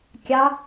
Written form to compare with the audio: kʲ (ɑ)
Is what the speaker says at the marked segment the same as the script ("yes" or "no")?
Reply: yes